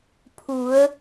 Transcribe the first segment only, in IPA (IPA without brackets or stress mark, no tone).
pʰ